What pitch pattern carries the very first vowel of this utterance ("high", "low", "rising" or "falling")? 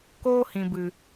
high